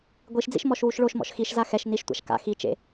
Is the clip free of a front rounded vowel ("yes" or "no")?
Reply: yes